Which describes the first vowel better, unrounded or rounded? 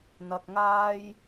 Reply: unrounded